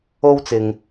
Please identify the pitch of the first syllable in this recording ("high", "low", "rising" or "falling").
high